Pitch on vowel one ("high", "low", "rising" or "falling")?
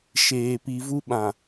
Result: low